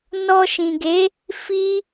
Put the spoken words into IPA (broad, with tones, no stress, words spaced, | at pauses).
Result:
nɔ˧ʃĩ˨ɡe˨˦ | fi˦